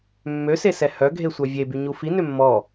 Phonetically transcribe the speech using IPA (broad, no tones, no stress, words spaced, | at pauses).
mːøsesɛ hœɡʱesʷœ vʲebyɲu fi nømːɔ